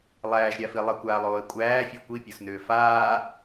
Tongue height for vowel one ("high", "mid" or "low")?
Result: low